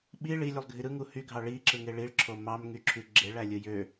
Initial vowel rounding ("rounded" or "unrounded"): unrounded